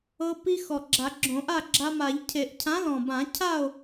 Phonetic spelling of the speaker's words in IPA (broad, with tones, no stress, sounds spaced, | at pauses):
ɤ˧ p i˧ x ɔ˨˩ ɡ͡ǁ a˨˩˦ ɡ͡ǁ õ˨˩˦ ʔ a˥˨ ɡ͡ǁ a˧ m a˨˩˦ ʎ cʰ e˨˩˦ ʔ cʰ ã˨˥ l ɔ̃˨˩ b ã˨˩˦ cʰ a˥˨ o̯